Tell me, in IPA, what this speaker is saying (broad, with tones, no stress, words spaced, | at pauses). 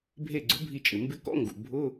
bʱe˧˩ɡ͡ǀʊ˩˥bʱi˧˩t͡ʃʼɪ˩ mbɪ˧kɔ̰˧˥˧ŋɡṵ˩ bʱʊ˧˥˧